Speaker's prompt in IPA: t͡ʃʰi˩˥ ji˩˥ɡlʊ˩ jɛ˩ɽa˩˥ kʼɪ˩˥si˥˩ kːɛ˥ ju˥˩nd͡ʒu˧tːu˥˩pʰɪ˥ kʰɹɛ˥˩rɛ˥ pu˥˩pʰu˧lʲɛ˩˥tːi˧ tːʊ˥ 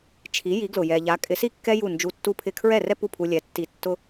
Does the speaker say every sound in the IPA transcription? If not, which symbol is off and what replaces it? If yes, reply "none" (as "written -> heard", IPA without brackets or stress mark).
ɽ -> ʎ